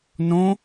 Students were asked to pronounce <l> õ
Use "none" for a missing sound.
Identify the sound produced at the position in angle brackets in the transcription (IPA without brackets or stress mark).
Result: n